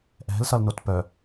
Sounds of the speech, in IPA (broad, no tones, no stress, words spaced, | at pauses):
ʔɛ̤lsʌlnot pœ